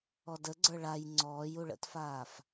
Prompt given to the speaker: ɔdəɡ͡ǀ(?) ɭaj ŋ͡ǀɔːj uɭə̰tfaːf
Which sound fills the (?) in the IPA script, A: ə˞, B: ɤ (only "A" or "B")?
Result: A